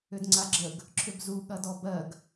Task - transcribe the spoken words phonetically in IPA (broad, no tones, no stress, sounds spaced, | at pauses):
ʏ d ŋ͡ǀ a ɡ͡ǁ ə ɡ | ǁʰ ʏ b z u ɠ ɐ d ɔ b ɜ ɡ